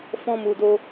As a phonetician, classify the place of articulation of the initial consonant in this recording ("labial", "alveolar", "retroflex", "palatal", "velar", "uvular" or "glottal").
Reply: labial